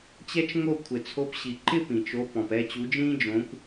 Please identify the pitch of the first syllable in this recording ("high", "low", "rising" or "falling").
high